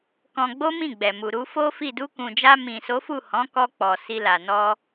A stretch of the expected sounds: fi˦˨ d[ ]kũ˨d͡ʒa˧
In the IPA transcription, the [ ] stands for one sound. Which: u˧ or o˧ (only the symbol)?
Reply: u˧